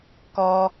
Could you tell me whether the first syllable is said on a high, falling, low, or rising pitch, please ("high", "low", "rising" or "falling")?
low